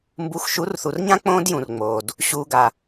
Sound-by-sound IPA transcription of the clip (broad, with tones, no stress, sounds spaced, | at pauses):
m b u˨˦ x ʃ u˨˦ r θ u˨ r ɲ ã˦ k͡p õː˦ d j ũ˨ r ŋ͡m oː˨ d | ɕ uː˨ ɡ a˨